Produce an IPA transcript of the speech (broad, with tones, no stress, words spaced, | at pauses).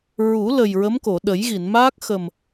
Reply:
ɹu˨˩˦lə˨˩j ɹə˧˥mko˨˩˨ ɗə˨˩˦jɣi˨˩˨nmaː˦˥k̚ xə˨˩m